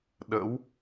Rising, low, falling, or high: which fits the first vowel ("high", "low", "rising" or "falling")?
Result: rising